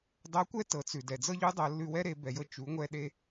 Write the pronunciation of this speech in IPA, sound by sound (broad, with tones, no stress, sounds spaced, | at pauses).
dˤ ɤ˧˥ kʷ ɛ˥ t ɤ˩˧ t͡s ʉ˩ d ɛ˩ d͡z ɤ˥ ʎ ʉ˧˥ dˤ ɤ˩˧ lː ʉ˧ w ɛ˥ ɾ e˩˧ b ɛ˩ j ɤ˧ t͡ʃ u˩˧ ŋʷ ɛ˧ ɗ e˧